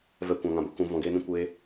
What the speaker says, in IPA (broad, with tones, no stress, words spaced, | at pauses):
vɛ˦ kʷã˧ŋã˧bo˦ kũ˧ vɔ̃˧ɡeː˦nĩ˦ kʷeː˦